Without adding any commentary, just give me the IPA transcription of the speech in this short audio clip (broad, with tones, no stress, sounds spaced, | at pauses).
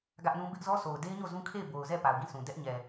ɡ ä˦ ʔ n ũ˦ b ɪ˦ ʔ z ɔ˦ s o˨ ʊ̯ d e˦ ɪ̯ ɲ o˦˨ z ũ˦ kʰ e˦˨ ɪ̯ b o˨ ʊ̯ z ɛ˦˨ p a˨ ʊ̯ ɡ ĩ˦˨ sʰ ũ˨ d ɛ˦ ʔ ɲ ɛ˨